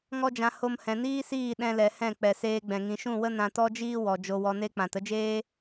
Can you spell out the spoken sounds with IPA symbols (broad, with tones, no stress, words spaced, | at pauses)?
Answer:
ŋɔ˦d͡ʒã˧ ho˧mhɛ̃˨niː˦siː˦˨ ɗɛ̃˦lɛ˧ hɛ̃˦˨k͡pɛ˨seː˧ɡ͡bɛ̃˨ ŋĩ˨ʃũ˦˨wə˦ nã˧tɔ˦d͡ʒiː˦ wɔ˨ d͡ʒo˧wɔ˧ne˦k͡pã˨t ə˦d͡ʒeː˦